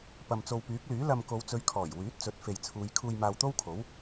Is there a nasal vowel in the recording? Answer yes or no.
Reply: no